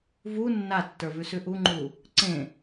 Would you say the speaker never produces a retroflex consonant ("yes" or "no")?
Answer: yes